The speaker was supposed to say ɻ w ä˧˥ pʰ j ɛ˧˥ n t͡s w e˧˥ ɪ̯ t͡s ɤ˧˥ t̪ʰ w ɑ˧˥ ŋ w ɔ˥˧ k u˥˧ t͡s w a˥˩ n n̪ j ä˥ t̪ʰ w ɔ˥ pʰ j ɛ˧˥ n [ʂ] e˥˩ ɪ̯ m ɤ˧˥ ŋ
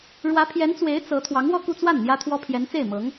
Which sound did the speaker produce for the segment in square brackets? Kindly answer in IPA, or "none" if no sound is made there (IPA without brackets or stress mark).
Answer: t͡s